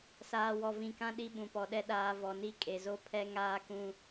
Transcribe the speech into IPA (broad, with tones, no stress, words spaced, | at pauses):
saː˨wɔ˨vĩ˨kã˦ ɗi˦ɓũ˨pɔ˨ɗɛ˦ ɗaː˨ vɔ˨ni˦˨ kʼe˨zo˦ pʰɛ˦ ŋaː˦kũ˦